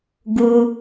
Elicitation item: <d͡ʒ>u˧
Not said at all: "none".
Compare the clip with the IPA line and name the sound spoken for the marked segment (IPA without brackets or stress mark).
ɡ